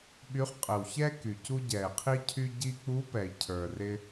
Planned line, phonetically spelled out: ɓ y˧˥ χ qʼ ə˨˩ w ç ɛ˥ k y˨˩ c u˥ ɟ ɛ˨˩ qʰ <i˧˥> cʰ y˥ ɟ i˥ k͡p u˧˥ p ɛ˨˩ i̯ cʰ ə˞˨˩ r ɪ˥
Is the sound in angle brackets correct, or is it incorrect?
incorrect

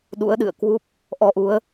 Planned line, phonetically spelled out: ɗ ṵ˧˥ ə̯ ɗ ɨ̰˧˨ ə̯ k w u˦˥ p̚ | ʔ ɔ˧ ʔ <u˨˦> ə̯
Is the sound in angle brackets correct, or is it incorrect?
correct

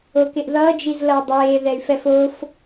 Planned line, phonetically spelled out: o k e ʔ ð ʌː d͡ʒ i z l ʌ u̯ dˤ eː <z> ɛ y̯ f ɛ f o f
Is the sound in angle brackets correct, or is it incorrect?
incorrect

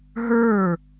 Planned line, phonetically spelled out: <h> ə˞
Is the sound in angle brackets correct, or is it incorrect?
incorrect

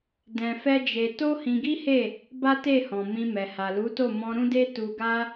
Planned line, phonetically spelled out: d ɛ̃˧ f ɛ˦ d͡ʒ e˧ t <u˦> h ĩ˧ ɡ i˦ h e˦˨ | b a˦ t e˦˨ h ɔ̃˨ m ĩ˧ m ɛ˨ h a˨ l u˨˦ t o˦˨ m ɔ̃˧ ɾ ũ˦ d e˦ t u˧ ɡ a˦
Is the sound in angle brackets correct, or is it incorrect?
incorrect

